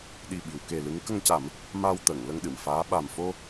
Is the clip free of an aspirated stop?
yes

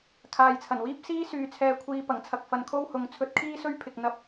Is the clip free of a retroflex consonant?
yes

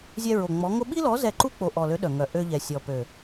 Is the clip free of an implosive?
no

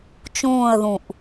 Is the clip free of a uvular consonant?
yes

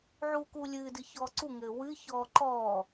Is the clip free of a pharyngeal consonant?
no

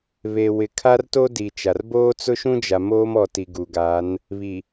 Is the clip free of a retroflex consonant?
yes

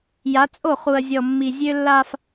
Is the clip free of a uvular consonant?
no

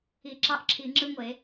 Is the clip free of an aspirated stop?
no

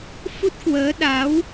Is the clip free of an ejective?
yes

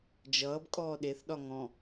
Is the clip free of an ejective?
no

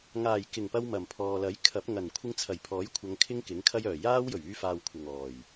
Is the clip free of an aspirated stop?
no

